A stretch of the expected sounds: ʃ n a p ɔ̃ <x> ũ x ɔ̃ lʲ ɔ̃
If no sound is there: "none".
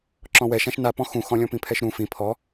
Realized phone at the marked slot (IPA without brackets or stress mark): x